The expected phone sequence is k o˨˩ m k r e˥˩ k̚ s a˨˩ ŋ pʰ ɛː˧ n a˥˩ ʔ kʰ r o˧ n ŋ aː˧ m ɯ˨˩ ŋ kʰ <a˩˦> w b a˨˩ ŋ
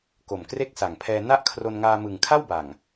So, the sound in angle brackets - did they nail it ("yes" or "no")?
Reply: no